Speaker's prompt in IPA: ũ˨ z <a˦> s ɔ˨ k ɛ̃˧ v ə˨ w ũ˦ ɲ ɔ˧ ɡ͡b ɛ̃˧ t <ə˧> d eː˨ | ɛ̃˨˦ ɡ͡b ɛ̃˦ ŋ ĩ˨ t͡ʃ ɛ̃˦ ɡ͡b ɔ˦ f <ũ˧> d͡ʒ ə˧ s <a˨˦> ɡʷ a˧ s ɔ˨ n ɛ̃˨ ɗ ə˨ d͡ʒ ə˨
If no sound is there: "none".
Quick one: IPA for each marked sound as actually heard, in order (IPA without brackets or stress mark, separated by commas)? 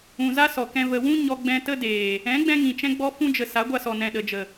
a˦, ə˦, ũ˦, a˨˦